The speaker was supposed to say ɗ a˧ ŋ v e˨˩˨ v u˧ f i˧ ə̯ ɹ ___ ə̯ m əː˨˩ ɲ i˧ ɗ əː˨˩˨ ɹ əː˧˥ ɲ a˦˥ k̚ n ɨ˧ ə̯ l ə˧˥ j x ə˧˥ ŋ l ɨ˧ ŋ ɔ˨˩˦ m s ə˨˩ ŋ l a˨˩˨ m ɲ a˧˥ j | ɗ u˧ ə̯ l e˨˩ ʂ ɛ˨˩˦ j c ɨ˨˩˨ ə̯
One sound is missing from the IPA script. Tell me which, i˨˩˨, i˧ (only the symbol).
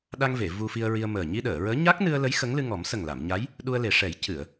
i˧